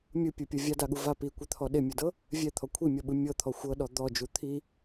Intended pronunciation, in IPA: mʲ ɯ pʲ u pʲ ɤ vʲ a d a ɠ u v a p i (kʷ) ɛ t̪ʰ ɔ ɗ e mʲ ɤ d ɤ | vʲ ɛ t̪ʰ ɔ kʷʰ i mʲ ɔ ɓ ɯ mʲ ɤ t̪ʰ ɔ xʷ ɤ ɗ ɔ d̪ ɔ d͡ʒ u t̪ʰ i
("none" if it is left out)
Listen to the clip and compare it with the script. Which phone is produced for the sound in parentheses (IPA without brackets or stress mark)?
kʷ